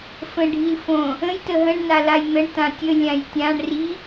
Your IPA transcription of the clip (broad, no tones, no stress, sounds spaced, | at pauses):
f ə̃ ɖʱ i l f õ | ə̃ j t ə ɦ ə̃ ɳ n a l a j n̪ ə ɳ t ã tʲ ə lʲ ã j tʲ ã ɳ r i